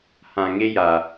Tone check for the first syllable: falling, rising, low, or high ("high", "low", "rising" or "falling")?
low